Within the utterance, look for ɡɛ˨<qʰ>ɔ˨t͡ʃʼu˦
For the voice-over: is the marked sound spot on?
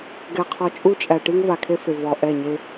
yes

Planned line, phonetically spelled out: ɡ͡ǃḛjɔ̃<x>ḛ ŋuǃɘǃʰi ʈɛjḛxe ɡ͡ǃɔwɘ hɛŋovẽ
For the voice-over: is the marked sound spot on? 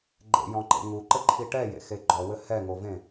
no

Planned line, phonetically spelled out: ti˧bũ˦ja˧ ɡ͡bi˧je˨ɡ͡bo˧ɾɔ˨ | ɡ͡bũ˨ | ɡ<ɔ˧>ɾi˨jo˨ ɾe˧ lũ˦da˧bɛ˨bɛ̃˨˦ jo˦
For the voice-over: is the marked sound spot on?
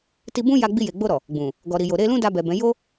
no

